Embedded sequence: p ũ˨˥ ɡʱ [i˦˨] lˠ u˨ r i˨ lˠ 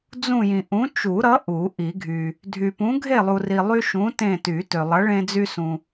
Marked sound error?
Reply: yes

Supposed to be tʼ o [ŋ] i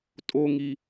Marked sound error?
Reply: no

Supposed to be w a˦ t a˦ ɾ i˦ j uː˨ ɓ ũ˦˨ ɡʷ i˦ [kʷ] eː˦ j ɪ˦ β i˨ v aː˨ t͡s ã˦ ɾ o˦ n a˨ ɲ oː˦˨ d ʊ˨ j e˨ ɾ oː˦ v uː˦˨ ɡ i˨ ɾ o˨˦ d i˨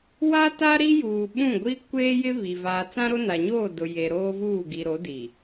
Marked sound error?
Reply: no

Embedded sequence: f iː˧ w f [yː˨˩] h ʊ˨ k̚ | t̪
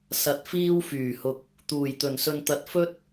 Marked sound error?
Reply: no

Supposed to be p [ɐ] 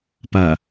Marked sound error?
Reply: no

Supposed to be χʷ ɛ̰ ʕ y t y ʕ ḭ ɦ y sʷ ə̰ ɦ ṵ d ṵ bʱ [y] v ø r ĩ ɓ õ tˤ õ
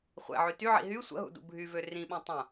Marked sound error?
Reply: no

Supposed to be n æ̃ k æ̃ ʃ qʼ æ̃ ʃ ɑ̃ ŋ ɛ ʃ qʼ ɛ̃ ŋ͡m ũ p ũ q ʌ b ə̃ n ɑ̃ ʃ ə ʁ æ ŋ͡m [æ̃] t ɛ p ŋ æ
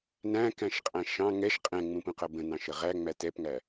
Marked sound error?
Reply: yes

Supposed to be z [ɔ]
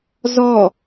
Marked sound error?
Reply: no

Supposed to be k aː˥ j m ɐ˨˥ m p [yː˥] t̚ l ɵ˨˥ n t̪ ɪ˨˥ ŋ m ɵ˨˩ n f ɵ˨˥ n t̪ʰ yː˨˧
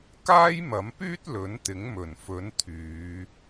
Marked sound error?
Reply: no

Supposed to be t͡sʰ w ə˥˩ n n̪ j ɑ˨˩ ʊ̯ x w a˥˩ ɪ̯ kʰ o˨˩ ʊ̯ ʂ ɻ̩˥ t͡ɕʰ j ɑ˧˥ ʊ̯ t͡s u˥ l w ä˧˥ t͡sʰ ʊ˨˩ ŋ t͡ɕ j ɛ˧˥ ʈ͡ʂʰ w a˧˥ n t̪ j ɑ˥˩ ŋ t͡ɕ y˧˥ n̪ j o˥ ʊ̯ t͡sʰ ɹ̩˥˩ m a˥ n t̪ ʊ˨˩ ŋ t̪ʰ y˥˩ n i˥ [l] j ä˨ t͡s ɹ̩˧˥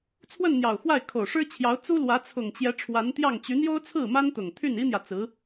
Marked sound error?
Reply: yes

